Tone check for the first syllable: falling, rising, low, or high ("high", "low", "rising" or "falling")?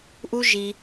high